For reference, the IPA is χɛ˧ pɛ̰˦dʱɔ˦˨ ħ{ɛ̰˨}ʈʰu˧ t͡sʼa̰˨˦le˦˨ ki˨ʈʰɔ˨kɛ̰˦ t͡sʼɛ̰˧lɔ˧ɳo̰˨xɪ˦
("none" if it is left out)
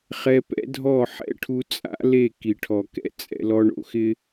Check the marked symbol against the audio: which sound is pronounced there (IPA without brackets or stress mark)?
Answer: ɛ̰˦